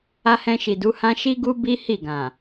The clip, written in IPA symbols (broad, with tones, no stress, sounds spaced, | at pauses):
a˧ h ɛ̃˧ ʃ i˨ d u˨˦ h ã˦ ʃ i˦ ɡ u˦ b i˦ h i˦˨ ɡ ã˨